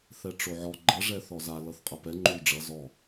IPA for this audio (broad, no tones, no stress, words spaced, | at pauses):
θɛʈ͡ʂoʕɔ ɡ͡ǃʌ ʐɛθɔza lʌθqʼʌpɛ ŋ͡ǃulɖ͡ʐʌ zɔ